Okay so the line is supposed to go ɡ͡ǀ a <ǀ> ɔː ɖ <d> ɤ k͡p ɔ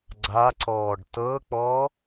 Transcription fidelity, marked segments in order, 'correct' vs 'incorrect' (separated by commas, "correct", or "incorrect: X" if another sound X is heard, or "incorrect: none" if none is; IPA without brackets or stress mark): correct, incorrect: t